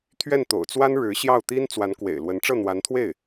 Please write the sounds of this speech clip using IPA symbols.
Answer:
t̪ʰ ɥ ɛ˥˩ n t̪ o̰˨˩ ʊ̯ t͡s w a˥ n ɻ ɻ̩˧˥ ɕ j ɑ˥˩ ʊ̯ t̪ i˥ n t͡s w a˧˥ n k w ḛ˨˩ ɪ̯ l w ə˧˥ n ʈ͡ʂ ɤ˥˩ n̪ w a˧˥ n t̪ʰ w e˥˩ ɪ̯

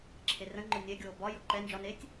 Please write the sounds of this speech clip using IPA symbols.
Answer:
ǁʰ e r ə̃ ŋ͡ǃ ʊ nʲ ɛ ɡʲ oː b ɒ j ʊ ǃ ɛ n d͡ʒ ɒ n eː tʲ

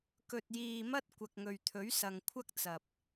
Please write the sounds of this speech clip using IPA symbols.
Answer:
k ɵ˨ t̚ j iː˨ m ɐ˥ t̚ kʷ ɐ˨ k̚ ŋ ɵ˨ ɥ t̪ʰ ɵ˨˥ ɥ s ɐ˨ ŋ kʷʰ ɐ˥ k̚ t͡s ɐ˨ p̚

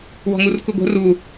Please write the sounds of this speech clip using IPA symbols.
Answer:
w ɔ̤ ŋ u r k u ɡʷ ə̤ r u

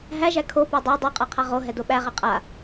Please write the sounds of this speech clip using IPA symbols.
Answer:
ɦ æ ʒ æ kʰ o p o dˤ ɛ dˤ o qʼ a qʰ a ʁ o ɦ ɛ d o ɓ æ ʁ ɛ qʼ a

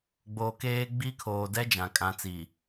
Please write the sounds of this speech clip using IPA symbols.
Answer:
ɡ͡b oː˨ k eː˦ ɡ͡b i˦ kʰ oː˨ d ɛ˦ d͡ʒ ã˨ kʼ ã˨˦ t͡s i˨

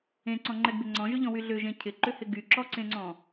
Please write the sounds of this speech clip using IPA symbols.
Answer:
ẽ ǀ ɔ̃ ŋ͡ǃ ɛ ɡ b ɪ ŋ͡ǀ ɔ̃ ʒ ʏ ʎ ɔ̃ w y ɮ ʏ ʒ ẽ cʰ ɪ ǃ ʏ h ɪ ɡ y ǁ ɔ ǀ ẽ ŋ͡ǀ ɔ̃

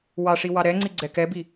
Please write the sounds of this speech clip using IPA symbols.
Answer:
w ɑ ʂ i w ɑ ɾ ɛ ŋ͡ǀ i ɡ͡ǀ ɛ k ɛ b i

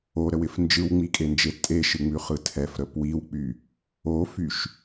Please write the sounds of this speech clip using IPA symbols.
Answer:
o ɾ ə w ɪ f n d͡ʒ ɯ w ŋ͡m i kʼ e n d͡ʒ e tʼ e ʃ ɯ ŋ͡m ʉ χ ɯ tʰ ɛ f ɾ ə p w i w k͡p y | o f y ʃ

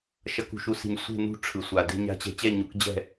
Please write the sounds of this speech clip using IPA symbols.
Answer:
ʃ ʌ˩˧ k ṳ˩ ʃ u˩˧ s i̤˩ ɲ sʷ e̤˦˨ n ṳ˦˨ ʈ͡ʂʰ ɯ˩ sʷ a˩ d e̤˦˨ ɲ a̤˦˨ t͡ɕ ɛ̤˦˨ t͡ɕ ɛ˦˨ ɲ u˩˧ k d͡ʑ ɛ̤˦˨

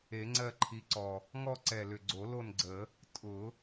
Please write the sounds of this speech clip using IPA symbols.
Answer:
e˨˩˦ ŋ͡ǀ ɜ˦˨ ǃʰ i˨˦ ǀ ɔ˨˩ | ŋ ɔ˦˨ ǀ ɛ˨˩ l ʏ˨˩ ɡ͡ǀ o˨˩˦ l o˦˨ n ɡ͡ǀ ə˨˩˦ | tʼ ʊ˨˩˦

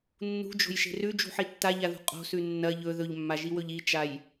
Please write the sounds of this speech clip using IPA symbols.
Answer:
nː ṳ d͡ʒ o̤ j ʃ e̤ r ʉ d͡ʒ ṳ ħ i tː a ʎ a ð ṳ qʼ o̤ s ʉ nː ɐ ʎ ɵ ð ɵ ʎ mː a ʒ i w ɵ ʎ i t͡ʃ a j

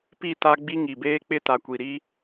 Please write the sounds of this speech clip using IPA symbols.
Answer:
p i˦˨ t a˦ ɡ͡b i˦ ŋ i˨ b eː˦ k͡p ɪ˦ t a˨ kʷ i˨ ɾ i˦

